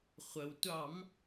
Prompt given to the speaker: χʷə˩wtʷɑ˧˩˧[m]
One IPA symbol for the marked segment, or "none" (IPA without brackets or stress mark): m